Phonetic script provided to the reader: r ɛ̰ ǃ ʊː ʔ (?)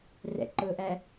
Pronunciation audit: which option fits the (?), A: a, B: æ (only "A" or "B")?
B